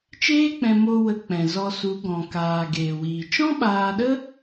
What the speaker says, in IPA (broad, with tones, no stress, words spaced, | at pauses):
t͡ʃeː˦k͡pɛ̃˧ mo˧ wə˧k͡pɛ̃˨zɔ˧su˨˦ ɡɔ̃˨kaː˨ ɡeː˨wiː˨ t͡ʃɔ̃˦ɓaː˧ɗə˦